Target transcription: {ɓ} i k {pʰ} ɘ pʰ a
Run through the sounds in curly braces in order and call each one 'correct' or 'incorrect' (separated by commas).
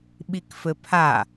correct, incorrect